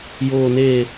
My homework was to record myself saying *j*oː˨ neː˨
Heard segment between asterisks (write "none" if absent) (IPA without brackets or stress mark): j